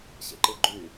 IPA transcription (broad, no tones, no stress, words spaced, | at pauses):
ɕḛǃɯɡ͡ǃy